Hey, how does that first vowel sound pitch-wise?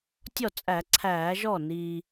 falling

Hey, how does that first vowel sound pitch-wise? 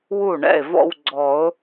falling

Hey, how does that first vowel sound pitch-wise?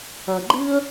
low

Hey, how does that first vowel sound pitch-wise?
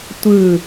falling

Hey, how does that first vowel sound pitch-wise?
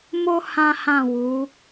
high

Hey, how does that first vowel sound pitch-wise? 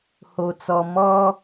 low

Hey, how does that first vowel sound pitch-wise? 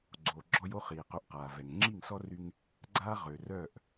low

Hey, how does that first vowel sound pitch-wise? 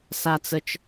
high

